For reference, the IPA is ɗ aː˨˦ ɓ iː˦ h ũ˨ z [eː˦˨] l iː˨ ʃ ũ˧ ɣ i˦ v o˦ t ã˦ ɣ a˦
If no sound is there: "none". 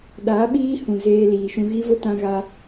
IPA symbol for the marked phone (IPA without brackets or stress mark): eː˧